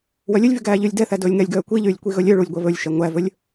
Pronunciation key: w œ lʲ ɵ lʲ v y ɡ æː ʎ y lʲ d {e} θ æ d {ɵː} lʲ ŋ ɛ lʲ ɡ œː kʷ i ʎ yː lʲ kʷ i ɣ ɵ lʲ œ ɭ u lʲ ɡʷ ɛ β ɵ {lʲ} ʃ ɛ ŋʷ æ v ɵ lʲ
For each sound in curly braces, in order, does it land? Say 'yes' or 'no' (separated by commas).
no, yes, yes